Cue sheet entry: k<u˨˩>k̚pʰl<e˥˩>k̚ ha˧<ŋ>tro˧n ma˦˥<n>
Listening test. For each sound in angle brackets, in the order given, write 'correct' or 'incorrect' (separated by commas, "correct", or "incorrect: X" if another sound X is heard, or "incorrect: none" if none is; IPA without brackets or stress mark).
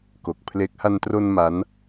incorrect: o˨˩, incorrect: e˦˥, incorrect: n, correct